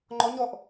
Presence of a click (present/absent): present